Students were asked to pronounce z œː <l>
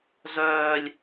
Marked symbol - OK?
no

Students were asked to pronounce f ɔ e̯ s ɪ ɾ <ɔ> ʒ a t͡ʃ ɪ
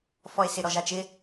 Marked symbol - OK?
yes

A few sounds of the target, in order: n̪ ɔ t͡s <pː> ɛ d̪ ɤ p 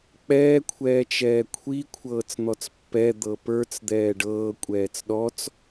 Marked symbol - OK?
yes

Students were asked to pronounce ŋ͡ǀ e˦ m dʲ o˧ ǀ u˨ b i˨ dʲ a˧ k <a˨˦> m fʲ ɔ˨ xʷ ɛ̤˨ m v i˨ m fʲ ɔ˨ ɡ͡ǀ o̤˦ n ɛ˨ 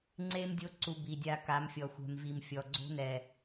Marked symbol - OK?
yes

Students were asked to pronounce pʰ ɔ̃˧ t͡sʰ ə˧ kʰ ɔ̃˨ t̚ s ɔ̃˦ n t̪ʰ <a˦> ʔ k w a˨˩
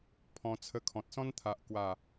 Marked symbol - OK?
no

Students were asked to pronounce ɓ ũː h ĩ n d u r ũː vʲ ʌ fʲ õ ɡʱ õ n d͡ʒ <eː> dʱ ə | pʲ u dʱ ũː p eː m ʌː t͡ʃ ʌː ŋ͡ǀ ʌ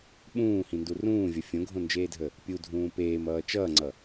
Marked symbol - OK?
yes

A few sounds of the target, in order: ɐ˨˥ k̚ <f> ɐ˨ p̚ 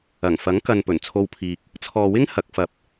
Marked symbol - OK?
yes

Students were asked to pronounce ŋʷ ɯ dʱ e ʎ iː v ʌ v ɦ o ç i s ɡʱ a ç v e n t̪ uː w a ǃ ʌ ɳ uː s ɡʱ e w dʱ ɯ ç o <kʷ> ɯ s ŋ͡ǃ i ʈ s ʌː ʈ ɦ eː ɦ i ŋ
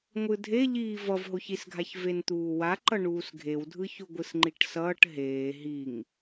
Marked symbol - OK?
no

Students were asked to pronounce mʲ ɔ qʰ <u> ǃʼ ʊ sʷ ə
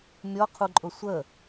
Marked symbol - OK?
yes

